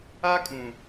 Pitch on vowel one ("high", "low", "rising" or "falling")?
high